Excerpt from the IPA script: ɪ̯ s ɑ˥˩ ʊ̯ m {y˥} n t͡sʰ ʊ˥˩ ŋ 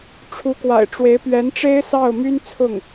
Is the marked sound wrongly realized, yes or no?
no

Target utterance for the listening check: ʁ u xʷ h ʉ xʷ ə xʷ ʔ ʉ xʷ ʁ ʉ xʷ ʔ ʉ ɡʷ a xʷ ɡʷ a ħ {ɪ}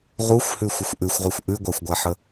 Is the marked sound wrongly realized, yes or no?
yes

